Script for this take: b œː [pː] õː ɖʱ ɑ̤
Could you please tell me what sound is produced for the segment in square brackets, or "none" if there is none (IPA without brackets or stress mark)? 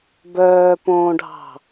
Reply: p